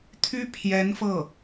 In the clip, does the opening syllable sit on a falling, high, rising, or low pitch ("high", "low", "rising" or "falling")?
high